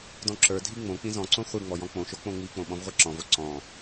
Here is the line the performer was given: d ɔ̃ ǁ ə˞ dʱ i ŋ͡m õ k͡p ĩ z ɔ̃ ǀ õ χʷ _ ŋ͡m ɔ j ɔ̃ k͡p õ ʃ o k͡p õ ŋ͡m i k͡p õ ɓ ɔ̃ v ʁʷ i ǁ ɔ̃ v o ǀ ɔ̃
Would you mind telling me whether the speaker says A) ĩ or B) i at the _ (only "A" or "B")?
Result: B